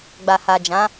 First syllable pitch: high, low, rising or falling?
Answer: low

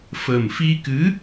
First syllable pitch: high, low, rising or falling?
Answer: low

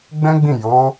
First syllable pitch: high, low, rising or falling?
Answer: high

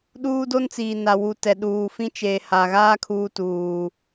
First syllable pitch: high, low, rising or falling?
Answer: high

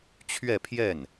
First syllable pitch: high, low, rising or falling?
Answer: falling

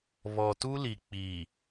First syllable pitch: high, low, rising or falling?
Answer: low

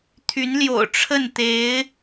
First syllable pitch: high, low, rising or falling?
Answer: rising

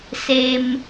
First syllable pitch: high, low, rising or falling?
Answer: high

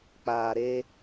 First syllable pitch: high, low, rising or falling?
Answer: low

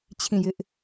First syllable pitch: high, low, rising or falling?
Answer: falling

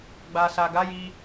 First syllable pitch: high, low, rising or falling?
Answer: low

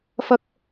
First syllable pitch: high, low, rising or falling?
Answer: high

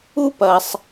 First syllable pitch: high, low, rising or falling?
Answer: high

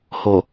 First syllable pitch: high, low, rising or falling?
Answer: low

